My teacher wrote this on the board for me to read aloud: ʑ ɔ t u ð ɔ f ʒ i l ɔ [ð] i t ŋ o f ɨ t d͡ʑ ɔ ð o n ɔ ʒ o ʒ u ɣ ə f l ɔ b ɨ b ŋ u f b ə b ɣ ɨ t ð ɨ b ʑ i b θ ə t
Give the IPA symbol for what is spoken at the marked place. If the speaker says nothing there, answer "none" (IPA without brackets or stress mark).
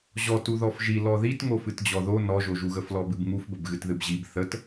ð